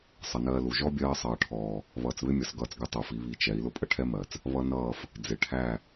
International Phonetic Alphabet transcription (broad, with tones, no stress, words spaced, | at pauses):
sˤʌ˨nɜː˧ lu˨ ʒɔ˦bʲɜː˧sˤʌː˨ʈʰɔː˨ | βʌː˨t͡sβɪ˦mʲʌ˨s ɡʌː˦˨t͡sɡɪ˦tˤu˨fi˨˦ βi˧ t͡ʃɛ˨˦i̯ lʊ˦pʼə˦ʈʰɛ˦mɜ˨t͡s | βʌ˦nʌː˦˨f | d͡zɪ˨ʈʰæ˦˨